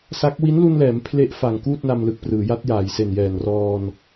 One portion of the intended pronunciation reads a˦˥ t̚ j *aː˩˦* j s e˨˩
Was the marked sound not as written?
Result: no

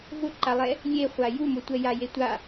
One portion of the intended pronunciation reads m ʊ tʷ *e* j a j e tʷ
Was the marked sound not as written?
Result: yes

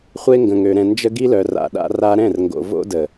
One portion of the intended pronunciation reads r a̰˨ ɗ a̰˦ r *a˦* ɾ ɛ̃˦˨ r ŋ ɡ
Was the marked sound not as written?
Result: no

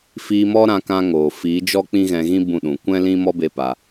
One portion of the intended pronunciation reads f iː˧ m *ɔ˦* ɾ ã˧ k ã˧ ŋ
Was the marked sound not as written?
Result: no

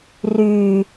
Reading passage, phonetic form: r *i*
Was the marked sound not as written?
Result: yes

